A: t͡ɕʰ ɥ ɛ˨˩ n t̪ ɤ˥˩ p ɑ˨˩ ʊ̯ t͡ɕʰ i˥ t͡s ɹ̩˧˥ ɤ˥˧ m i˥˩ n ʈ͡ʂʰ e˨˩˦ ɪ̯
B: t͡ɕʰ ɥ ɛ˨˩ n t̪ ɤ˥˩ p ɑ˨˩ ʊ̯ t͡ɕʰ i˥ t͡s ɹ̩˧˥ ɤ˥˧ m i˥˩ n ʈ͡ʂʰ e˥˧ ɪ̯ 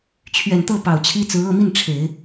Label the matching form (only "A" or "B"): A